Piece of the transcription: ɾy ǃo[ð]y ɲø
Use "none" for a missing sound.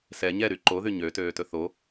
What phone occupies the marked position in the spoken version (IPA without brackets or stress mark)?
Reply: ð